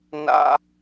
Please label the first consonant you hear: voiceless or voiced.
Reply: voiced